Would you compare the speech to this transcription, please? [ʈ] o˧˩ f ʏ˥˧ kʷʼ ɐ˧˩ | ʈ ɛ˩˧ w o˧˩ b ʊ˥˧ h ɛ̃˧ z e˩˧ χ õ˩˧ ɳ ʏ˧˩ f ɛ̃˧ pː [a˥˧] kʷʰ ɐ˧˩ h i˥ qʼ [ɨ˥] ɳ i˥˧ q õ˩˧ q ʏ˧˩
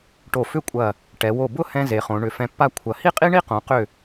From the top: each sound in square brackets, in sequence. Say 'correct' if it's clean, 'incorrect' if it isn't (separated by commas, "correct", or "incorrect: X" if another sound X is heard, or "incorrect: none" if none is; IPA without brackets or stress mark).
correct, correct, incorrect: i˥